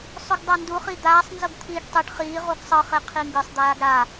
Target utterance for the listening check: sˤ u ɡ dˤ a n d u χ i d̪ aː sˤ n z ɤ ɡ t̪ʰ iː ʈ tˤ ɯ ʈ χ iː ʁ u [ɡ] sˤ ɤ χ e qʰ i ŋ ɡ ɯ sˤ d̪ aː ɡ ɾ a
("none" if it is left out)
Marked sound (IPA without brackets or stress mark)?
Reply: ɡ